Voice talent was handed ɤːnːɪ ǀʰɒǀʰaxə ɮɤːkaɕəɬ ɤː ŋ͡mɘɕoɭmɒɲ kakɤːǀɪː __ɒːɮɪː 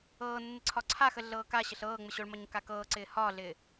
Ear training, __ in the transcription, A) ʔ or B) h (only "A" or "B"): B